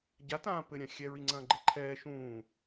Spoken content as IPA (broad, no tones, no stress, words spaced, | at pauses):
ɟa tãːpɘ ɾʲãxʲɛ ɹiŋ͡ǀɐ̃ːɡ͡ǃeǃʰɛː ʃũː